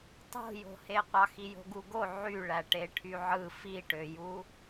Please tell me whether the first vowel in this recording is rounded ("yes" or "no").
yes